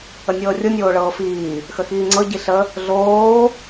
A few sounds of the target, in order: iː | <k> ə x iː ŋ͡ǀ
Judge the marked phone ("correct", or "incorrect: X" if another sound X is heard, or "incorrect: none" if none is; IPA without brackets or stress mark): incorrect: x